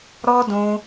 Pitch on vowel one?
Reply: high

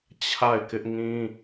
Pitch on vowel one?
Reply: falling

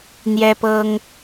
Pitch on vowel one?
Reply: high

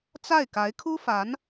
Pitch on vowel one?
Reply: falling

